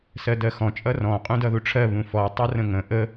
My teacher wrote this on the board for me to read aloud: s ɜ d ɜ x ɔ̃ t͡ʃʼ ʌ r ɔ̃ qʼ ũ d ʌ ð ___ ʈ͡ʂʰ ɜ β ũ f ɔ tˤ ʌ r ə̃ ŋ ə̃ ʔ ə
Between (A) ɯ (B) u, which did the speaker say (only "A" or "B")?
B